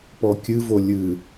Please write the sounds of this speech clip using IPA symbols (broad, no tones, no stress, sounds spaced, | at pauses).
p ɔ kʲ ɨ v o lʲ ɨ